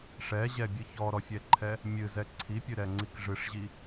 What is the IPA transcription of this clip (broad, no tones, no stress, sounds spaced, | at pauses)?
ʂ ɛ ʑ ɛ bʲ ɨ ç ɔ ɾ ɔ fʲ ɛ ǃʰ ɛ | mʲ ɨ z ɛ ǀʰ i pʲ ɨ ɾ ɛ ŋ͡ǀ i k ʐ ɨ ʂ ʑ i